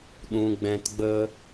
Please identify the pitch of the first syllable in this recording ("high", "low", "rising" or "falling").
high